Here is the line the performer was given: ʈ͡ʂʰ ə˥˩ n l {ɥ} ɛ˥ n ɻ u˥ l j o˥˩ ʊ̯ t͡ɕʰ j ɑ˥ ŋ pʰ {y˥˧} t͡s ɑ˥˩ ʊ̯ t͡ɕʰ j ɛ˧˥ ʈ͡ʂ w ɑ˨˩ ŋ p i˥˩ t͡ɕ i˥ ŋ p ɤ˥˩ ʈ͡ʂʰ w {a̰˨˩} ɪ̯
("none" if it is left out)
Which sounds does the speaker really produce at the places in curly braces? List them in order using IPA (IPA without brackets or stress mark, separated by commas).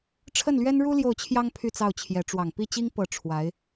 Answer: ɥ, y˥˧, a˧˥